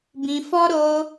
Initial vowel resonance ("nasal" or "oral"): nasal